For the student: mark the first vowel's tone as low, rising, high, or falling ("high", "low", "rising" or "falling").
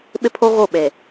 high